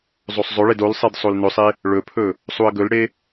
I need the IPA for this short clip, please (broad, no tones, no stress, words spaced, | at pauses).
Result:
zˤosˤzˤɵɭed olsˤed sˤolnɵsˤe | ɭɵpʰɵ | sˤuə̯ɡɵlɽe